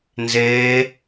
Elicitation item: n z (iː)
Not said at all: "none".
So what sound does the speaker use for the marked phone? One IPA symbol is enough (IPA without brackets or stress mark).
eː